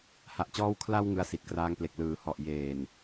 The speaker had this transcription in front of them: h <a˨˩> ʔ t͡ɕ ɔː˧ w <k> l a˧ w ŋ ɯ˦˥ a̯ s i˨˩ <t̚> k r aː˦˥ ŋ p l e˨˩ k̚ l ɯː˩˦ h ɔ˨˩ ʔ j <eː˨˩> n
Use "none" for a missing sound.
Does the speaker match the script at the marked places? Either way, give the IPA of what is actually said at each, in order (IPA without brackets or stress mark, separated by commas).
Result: a˨˩, kʰ, t̚, eː˨˩